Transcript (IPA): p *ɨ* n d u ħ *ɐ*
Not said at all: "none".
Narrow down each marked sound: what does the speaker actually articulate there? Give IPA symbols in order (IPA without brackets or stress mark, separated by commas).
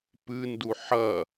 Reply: ɨ, ɐ